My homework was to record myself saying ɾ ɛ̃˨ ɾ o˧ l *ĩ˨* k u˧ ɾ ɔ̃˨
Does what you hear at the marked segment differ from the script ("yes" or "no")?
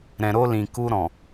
no